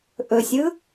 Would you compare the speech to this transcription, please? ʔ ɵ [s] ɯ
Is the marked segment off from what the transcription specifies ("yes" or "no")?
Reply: yes